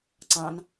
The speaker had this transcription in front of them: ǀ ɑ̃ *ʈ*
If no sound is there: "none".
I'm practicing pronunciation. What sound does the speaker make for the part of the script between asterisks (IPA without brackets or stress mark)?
n